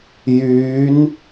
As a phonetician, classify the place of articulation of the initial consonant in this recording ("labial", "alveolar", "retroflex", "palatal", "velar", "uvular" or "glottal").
palatal